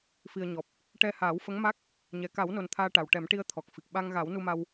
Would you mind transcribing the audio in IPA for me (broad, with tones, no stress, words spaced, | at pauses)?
fi˨˩ə̯ɲɔ˨˩p̚ | ʈɛ˧haː˨˩˦w fə˧˥ŋma˦˥k̚ | ɲɛ˨˩ka˨˩˦wno˨˩n t̪ʰaː˧ʈa˨˩wʈɛ˨˩˦mʈi˧ə̯ t̪ʰɔ˨˩k̚fi˨˩k̚ ɓa˧ŋɣa˨˩˦wnu˧ma˧w